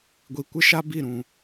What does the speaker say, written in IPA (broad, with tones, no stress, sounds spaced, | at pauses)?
ɡʷ i˨ kʷ ɪ˦ ʃ a˦ b i˦˨ ɾ ũ˨